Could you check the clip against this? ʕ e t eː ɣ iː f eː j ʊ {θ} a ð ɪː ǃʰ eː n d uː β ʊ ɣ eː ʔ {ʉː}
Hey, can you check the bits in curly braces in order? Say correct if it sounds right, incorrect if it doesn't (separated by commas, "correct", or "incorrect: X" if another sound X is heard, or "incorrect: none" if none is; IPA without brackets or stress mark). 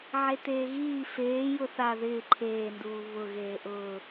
correct, incorrect: ʊː